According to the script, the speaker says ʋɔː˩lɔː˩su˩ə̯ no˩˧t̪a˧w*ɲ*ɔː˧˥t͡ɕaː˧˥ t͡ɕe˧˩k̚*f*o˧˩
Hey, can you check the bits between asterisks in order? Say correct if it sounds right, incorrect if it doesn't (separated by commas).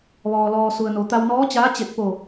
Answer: incorrect, incorrect